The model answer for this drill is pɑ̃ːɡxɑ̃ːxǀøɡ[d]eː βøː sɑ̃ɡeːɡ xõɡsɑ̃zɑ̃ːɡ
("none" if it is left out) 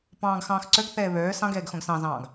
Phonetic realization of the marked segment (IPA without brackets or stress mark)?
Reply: θ